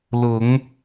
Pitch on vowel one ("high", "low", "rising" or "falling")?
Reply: low